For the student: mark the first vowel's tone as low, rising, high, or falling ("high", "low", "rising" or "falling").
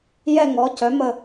falling